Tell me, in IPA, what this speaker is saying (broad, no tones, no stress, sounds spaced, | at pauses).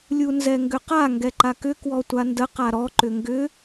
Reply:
lʲ u n z ɛ ŋ ɡ ʏ q a ŋ ɡ ɛ ǃ a k ʏ k w ɔ tʷ a n d ə q a ɾ ɔ ǃ ʏ ŋ ɡ ʏ